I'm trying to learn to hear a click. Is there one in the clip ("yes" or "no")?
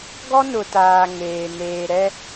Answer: no